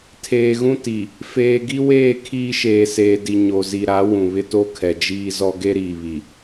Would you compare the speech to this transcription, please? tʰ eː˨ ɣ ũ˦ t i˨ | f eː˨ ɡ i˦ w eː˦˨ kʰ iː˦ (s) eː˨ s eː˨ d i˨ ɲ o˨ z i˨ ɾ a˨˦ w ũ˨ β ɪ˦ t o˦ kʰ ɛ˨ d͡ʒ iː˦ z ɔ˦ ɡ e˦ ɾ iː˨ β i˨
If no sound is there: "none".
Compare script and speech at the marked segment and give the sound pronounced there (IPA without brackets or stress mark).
ʃ